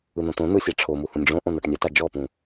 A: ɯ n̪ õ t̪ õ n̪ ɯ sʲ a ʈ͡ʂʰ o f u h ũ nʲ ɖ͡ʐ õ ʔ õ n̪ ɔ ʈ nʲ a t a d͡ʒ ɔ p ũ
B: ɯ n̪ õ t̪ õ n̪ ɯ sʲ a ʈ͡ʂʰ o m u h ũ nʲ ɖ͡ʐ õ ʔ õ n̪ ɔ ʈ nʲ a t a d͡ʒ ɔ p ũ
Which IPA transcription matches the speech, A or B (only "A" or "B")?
B